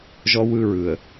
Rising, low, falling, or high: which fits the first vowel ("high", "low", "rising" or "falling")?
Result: high